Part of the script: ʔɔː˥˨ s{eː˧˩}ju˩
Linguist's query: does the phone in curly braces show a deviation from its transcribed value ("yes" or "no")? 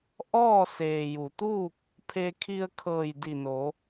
yes